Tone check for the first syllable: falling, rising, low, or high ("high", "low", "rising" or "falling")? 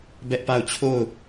high